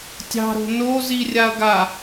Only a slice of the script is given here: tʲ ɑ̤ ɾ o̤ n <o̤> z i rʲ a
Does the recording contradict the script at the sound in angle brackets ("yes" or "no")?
yes